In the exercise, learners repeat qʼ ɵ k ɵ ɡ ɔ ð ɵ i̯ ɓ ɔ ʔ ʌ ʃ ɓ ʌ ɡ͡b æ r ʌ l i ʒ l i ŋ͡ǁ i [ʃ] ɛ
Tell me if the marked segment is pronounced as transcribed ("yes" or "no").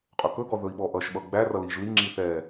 no